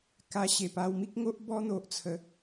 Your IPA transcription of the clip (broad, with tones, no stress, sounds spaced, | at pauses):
k a˧ ɕ e˨˩ p a˧ w m i˦ k̚ ŋ o˦ ʔ b ɔ˦ n̪ o˨ ʔ t͡sʰ ə˨˦